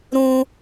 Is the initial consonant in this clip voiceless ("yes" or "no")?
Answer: no